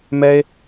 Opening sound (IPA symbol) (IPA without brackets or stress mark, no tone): m